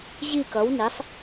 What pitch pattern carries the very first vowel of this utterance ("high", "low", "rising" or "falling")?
falling